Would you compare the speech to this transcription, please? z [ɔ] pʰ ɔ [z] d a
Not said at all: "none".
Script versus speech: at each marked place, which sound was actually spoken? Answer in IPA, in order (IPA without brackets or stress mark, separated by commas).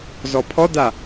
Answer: ɔ, none